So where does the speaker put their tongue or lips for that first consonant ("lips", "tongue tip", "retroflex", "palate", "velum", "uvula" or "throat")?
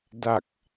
tongue tip